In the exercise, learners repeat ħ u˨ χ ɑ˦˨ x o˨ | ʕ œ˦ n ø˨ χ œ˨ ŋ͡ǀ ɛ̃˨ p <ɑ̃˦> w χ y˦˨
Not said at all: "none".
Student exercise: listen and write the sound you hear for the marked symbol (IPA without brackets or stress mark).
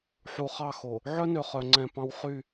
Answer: ɑ̃˦